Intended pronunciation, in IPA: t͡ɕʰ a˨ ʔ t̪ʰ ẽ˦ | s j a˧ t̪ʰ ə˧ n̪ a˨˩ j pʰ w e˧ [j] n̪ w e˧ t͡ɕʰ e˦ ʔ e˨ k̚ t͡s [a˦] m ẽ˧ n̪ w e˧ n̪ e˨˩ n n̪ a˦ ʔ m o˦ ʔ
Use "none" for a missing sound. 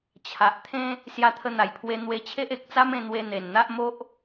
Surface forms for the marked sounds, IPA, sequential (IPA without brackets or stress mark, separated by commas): none, a˦